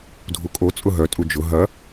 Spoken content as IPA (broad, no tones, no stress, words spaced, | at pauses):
dʱukʼo t͡sʼʊɦœ tʼud͡ʒʊ ɦɐ